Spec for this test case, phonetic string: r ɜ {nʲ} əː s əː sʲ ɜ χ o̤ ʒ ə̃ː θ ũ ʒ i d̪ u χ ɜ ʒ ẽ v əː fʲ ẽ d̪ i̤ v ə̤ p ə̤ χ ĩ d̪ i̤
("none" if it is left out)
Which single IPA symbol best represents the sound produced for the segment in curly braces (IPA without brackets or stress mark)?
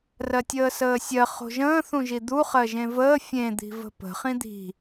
tʲ